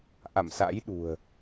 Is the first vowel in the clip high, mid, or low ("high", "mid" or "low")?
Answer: low